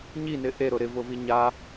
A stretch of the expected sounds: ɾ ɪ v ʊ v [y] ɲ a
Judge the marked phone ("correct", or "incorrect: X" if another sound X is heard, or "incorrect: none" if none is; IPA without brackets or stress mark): incorrect: i